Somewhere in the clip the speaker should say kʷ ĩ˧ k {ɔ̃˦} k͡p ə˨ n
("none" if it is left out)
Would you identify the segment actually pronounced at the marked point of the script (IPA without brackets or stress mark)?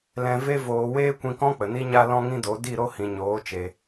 ɔ̃˦